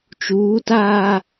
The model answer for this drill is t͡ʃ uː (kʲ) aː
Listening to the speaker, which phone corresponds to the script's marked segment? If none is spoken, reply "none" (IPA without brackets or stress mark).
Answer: t